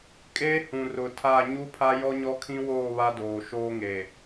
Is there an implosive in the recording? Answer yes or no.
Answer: no